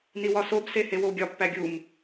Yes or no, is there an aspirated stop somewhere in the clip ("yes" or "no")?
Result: no